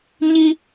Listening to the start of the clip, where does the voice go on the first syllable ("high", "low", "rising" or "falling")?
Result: high